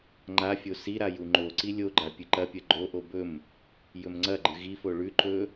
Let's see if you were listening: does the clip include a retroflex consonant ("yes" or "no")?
yes